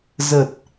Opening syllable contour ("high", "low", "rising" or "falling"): low